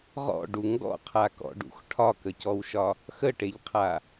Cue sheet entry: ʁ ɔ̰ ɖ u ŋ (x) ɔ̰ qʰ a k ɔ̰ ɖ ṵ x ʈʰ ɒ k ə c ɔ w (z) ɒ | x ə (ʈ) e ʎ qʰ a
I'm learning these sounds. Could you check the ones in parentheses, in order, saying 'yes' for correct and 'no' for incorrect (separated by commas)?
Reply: no, no, yes